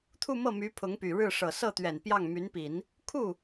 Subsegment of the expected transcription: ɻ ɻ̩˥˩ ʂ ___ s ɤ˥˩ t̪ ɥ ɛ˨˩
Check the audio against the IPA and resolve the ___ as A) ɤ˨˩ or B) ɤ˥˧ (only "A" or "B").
A